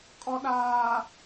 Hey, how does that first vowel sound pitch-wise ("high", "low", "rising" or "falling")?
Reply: low